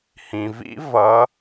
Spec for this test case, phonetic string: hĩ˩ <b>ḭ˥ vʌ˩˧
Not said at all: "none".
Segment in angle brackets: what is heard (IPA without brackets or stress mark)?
v